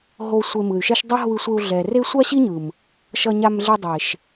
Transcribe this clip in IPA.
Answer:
ɦ o˧ sʷ e˧ m ɯ˨ y̯ ʃ ɛ˦ ʃ dˤ ʌ˦ ɦ u˧ i̯ sʷ e˧ u̯ ɮ ɛ˨ r e˦ sʷ a˦ ɕ i˦ ɲ ɯ˨ m | ʃ ʌ˧ ɲ a˧ m ɮ e˧ dˤ e˨ ʃ

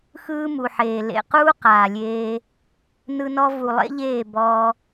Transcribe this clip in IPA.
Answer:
x ɯː˦ m u˨ ħ eː˨ l ḛ˨ q uː˦ q aː˨ lʲ eː˦ | n ɯ˦ n ɔ˦ v u˨ lˠ ḛ˦ ʎ eː˦˨ b ɔ˦

